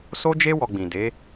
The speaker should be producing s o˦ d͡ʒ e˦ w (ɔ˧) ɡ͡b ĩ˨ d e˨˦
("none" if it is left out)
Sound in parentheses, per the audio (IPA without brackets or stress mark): ɔ˧